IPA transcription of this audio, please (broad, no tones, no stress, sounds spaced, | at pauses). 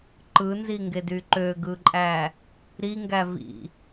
ǃ ɯ n z i ŋ ɡ e d y ǃ ø ɡ ɯ ǃʼ æ | ɾ i ŋ ɡ æ v ḭ